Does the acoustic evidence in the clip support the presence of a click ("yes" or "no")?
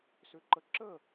yes